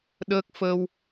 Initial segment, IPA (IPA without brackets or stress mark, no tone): ɗ